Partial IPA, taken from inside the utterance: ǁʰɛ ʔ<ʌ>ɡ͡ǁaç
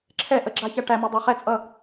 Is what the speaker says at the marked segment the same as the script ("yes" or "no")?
no